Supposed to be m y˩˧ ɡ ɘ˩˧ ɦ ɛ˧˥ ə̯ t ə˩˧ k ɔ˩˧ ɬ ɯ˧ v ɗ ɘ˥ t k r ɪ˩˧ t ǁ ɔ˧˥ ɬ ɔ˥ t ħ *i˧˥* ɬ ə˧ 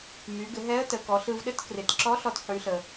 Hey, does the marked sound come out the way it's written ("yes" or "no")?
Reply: no